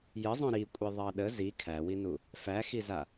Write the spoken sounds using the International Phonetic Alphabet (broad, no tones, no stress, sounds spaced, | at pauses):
j ə zˤ õ ɾ i kʷʼ i ðˤ ɑ ɗ ə z i kʰ æ w i n u | f æ x i z a